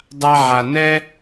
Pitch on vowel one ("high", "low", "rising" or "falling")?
high